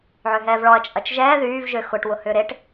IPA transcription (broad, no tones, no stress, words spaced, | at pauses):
ʕøɦɛːvɭɔɐ̯ t͡ʃʼɐt͡ʃʒɛː ðyːv ʒøxʊʈ wʊhʏːɾeʈ